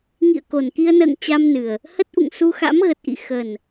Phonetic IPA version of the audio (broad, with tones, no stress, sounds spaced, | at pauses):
ŋ ḭ˧˨ ə̯ k o˨˩ n k i˧ ə̯ n ə̰ː˧˨ ŋ t͡ɕ a˧ m n ɨ˨˩ ə̯ | h ə˦˥ t̚ ʔ ṵ˧˨ ŋ s u˧ x a̰˧˥ m ɣ ə˨˩ t̚ ʔ ḭ˧˨ x ə˨˩ n